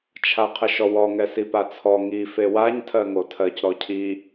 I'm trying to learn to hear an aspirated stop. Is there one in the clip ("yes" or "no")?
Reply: yes